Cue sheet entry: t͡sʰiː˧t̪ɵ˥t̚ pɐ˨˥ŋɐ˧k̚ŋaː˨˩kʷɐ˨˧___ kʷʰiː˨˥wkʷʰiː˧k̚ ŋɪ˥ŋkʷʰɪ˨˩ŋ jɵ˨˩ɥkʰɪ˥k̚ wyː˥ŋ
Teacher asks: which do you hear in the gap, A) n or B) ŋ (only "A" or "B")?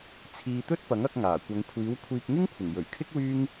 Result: B